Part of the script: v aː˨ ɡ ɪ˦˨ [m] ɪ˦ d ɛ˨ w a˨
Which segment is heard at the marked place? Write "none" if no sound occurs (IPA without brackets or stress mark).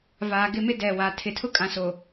m